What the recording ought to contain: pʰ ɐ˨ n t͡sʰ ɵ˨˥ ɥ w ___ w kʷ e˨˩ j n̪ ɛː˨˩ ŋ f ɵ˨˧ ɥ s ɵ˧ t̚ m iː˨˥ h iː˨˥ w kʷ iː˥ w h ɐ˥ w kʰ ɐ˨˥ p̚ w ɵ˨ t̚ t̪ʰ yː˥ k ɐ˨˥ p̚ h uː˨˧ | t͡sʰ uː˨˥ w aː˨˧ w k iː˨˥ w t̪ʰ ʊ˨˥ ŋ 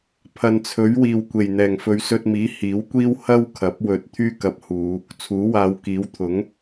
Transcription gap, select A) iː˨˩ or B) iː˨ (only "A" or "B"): B